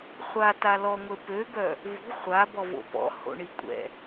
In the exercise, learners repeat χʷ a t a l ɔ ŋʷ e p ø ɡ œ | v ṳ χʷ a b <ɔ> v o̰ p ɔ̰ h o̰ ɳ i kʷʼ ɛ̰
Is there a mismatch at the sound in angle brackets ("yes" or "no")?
no